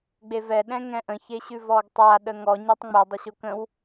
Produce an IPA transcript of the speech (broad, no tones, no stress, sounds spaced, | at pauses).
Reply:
ɡ͡b e v ɛ ɗ ɛ̃ ŋ ɛ̃ ʔ ə̃ ç e ɕ ʉ v ɔ ɡ tˤ a ɗ ə ŋ ɔ ɲ ɛ tˤ ŋ͡m e dˤ ə ɕ o k ə̃ w